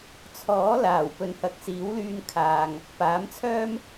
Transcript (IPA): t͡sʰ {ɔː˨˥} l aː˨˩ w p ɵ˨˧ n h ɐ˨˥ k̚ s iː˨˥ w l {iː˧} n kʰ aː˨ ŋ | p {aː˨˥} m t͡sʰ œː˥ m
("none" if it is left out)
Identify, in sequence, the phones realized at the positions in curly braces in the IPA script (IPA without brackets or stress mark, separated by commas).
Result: ɔː˨˥, yː˧, aː˨˥